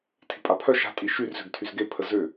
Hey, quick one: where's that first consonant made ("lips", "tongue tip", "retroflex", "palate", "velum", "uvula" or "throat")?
tongue tip